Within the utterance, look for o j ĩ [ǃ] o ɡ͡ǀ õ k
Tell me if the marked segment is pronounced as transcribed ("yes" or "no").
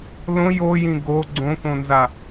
no